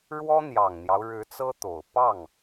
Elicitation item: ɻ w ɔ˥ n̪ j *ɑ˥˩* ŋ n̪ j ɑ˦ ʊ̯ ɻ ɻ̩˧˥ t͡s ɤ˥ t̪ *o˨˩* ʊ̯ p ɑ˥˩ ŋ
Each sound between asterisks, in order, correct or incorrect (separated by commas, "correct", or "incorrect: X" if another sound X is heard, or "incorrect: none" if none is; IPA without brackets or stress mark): incorrect: ɑ˨˩, correct